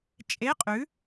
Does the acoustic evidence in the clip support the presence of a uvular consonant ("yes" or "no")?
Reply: yes